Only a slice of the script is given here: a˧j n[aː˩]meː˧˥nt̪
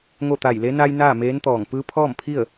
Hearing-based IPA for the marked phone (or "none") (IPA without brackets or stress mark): aː˥˨